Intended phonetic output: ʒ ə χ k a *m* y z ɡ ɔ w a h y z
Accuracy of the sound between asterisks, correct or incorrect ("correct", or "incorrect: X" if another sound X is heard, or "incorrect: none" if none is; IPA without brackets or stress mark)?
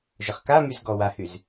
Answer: correct